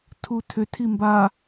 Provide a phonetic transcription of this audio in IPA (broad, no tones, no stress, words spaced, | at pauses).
tʰutʰʏ tʰimba